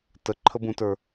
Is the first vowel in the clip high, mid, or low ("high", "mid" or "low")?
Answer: mid